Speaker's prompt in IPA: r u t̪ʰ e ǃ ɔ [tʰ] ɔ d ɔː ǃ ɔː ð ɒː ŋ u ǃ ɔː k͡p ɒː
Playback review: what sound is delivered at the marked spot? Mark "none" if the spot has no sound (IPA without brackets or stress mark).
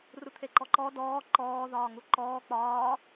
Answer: ǃ